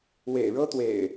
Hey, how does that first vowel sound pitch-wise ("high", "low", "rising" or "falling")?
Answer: low